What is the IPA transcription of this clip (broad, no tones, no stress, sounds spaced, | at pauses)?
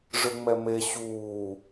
ʐ ɯ ŋ͡m ɛ m e ɕ uː